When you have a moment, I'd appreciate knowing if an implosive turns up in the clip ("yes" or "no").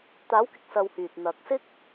no